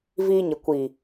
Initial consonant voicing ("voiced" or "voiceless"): voiced